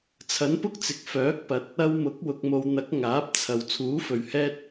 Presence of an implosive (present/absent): absent